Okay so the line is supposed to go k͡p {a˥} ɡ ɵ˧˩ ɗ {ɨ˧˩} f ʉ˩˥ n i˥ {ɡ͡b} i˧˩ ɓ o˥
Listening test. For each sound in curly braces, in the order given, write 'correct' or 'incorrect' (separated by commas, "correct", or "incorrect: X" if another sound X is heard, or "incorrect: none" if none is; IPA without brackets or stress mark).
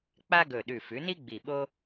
correct, incorrect: ʉ˧˩, correct